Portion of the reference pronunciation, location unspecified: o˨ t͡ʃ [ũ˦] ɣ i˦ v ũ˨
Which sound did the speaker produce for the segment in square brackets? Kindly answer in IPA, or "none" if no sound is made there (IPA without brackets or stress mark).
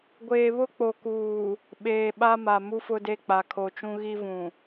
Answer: ũ˦